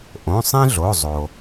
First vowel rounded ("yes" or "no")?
yes